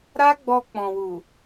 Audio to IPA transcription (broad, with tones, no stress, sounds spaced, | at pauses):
ɾ a˦ ɡ͡b ɔ˧ k͡p ɔ̃˨ w u˨